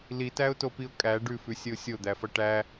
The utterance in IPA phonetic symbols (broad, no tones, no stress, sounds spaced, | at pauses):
l i t æ ʊ̯ t o p i ʊ̯ kʼ æ ɖ ʉ f ʉ sʲ ə ʊ̯ sʲ o d̪ æ f ʌ ʈ æ